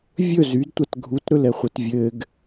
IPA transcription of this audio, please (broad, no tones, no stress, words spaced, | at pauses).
vʲɵ zydtʷat ɡʱutɾɵlɛχʷɘt vʲɘɡ